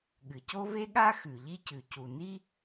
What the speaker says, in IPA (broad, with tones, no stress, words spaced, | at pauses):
ɠɨ˩co˥ ve˥ɠa˥ xʉ˩ʎi˥cʉ˩ cu˩ni˥